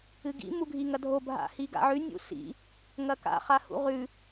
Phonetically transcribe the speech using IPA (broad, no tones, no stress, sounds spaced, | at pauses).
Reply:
ɨ ɡ ḭ m u ɡʱ i ŋ ɐ dʱ o bʱ a̰ h i ɡ a̰ ʕ ʉ nʲ ṵ s ḭ | ŋ ɐ k a̰ χ a h ṵ ʁ ʉ